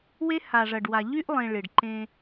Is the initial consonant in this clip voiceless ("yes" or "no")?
no